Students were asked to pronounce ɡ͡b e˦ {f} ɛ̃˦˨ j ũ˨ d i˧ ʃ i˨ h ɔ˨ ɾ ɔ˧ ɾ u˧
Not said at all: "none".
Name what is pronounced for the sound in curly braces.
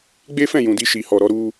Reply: f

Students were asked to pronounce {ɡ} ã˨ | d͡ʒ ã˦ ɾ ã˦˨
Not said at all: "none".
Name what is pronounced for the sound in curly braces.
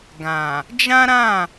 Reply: ɡ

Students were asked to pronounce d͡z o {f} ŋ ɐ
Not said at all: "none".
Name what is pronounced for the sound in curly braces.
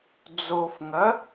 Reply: f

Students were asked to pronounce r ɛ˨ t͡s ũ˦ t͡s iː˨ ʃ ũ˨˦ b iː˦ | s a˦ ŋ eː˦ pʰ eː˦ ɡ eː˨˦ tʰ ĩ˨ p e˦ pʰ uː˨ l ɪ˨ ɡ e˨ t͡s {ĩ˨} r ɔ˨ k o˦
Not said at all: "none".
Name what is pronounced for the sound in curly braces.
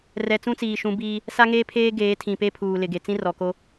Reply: ĩ˦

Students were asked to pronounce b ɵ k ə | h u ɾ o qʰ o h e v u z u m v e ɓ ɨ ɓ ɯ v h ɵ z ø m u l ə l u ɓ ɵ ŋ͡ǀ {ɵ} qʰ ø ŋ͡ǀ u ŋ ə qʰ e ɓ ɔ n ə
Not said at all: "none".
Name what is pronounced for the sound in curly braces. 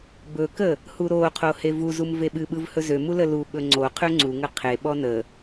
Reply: o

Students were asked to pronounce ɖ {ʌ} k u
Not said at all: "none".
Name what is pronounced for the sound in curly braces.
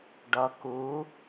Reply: ʌ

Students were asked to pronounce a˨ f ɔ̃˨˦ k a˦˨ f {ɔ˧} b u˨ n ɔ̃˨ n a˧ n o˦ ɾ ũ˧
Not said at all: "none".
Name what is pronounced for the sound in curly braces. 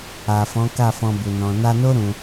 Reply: ɔ̃˧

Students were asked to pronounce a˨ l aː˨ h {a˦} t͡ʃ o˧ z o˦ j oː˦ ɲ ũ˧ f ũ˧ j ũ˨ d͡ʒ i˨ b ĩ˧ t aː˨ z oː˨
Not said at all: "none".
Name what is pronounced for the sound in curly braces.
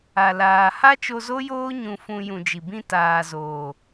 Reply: a˦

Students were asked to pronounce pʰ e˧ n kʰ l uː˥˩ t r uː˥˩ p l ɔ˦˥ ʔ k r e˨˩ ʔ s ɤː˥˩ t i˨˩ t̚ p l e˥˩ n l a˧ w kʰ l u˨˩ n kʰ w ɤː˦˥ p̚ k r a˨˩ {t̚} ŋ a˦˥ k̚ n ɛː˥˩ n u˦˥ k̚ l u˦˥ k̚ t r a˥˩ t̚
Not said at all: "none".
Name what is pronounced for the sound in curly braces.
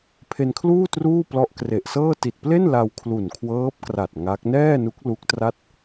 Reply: t̚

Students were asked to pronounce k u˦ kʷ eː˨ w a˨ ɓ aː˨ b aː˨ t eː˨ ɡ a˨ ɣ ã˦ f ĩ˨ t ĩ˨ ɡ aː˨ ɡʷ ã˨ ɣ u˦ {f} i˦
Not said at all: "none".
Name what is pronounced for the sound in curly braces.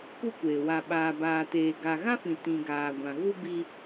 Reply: b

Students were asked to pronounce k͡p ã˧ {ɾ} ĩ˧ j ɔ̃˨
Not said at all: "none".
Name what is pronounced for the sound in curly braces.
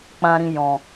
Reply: ɾ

